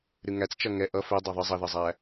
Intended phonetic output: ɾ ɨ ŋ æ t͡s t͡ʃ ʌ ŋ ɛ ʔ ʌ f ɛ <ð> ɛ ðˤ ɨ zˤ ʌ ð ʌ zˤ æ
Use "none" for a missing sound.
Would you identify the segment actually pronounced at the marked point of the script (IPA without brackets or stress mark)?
dˤ